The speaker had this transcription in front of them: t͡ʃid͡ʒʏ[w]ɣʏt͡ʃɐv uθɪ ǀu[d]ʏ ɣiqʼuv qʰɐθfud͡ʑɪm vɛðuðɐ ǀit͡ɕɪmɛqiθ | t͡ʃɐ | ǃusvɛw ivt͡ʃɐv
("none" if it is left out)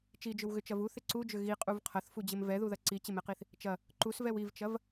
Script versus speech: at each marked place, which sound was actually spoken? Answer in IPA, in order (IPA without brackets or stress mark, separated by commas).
w, d͡ʒ